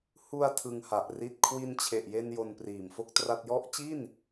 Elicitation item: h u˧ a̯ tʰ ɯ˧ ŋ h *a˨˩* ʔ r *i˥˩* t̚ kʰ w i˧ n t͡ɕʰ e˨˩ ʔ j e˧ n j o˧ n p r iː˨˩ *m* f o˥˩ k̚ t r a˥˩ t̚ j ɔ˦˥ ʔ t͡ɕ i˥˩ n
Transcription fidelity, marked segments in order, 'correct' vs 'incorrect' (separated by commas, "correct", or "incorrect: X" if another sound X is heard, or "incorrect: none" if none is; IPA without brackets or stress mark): correct, correct, correct